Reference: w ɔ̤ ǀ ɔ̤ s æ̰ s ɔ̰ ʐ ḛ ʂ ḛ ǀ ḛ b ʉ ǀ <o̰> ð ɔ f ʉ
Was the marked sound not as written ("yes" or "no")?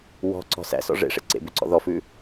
yes